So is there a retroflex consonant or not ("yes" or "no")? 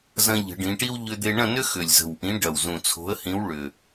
yes